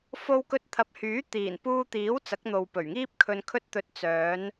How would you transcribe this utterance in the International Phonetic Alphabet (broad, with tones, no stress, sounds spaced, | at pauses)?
f o˧ w k ɵ˧ t̚ t̪ʰ ɐ˨˥ p̚ h yː˨˥ t̪ iː˨˩ n p uː˧ t̪ iː˨˥ w t͡s ɐ˨˥ k̚ n̪ o˨ w p ɵ˨˩ ɥ ŋ iː˥ p̚ kʰ ɵ˧ n kʰ ɵ˥ t̚ t̪ ɵ˧ t̚ t͡s œː˨˧ n